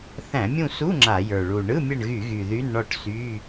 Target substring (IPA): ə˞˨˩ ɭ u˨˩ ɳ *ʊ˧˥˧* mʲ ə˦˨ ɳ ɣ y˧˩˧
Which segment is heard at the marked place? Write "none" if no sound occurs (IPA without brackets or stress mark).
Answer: ɯ˧˥˧